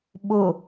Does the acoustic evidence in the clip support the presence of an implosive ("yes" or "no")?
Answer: yes